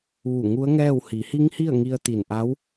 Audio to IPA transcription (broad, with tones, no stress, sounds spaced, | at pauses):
ʋ u˧˩ ŋ u˧˥ ə̯ ŋ ɛː˥˨ w h i˩˧ h i˧˥ ŋ h i˥˨ ə̯ ŋ i˧ ə̯ t̪ i˧˩ n ʔ a˧˥ w